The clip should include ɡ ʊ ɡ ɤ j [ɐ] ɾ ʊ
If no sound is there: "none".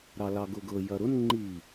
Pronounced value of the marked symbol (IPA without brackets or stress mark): ɐ